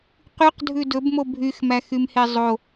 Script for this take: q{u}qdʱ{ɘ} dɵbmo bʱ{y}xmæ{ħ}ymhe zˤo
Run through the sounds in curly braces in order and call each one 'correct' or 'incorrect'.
incorrect: y, incorrect: ʉ, correct, incorrect: x

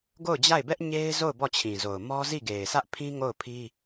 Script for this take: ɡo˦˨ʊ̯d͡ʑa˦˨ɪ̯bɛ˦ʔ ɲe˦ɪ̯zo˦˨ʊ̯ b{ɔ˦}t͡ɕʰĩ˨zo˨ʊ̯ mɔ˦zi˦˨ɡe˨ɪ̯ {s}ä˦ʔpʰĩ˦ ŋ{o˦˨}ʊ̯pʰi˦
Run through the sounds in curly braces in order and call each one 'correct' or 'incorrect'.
incorrect: ɔ˦˨, correct, correct

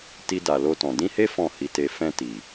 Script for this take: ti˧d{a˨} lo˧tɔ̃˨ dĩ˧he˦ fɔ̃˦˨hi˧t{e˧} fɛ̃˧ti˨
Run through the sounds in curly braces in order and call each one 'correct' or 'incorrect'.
correct, correct

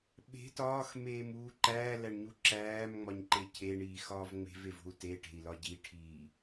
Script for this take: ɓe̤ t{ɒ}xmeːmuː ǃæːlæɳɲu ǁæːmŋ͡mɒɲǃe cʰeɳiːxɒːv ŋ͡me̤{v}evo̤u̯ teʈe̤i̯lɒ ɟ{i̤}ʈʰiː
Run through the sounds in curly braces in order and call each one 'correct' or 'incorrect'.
incorrect: ɒː, correct, incorrect: i

